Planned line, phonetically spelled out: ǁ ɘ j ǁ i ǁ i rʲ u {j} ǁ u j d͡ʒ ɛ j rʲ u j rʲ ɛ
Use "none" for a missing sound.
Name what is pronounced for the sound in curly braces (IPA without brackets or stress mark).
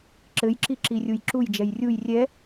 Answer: j